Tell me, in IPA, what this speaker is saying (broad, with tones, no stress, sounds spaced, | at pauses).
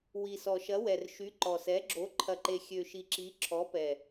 w i˨˩ s ɔ˨˩ ʃ ɐ˨˥ w ɛ˨˩ r ʃ y˨˥ ǃ ɔ˨˩ s ɛ˨˥ ɡ͡ǁ o˨˥ ǃʰ ɐ˨˩ ǃ e˨˩ xʲ ø˨˩ ʃ i˨˩ ǁ i˨˥ ǁʰ ɔ˨˥ p ɛ˨˩